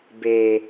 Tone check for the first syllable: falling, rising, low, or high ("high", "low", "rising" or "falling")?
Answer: low